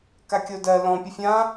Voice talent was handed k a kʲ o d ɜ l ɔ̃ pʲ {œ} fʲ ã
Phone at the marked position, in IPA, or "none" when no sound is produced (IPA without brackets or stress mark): ə